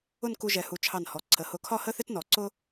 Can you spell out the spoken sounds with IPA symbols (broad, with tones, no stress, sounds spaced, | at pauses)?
ʊ˥˧ n k u˧ ʒ ɛ˩˧ h u˩˧ t͡ʃʰ ɑ˧˩ n h ɔ˩˧ ǀʰ ə˩˧ h ʊ˧˩ kʰ ɒ˥˧ h ə˥ θ ɪ˥ t n ɔ˩˧ ǀ ʊ˥